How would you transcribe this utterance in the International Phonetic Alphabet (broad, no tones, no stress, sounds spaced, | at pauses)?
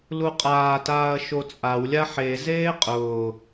l u qʼ aː t aː ɐ̯ ʃ o t͡sʼ a w lʲ a ħ e z eː qʼ ʊː